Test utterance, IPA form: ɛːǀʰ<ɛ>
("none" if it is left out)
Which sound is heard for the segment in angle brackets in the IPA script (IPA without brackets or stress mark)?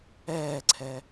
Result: ɛ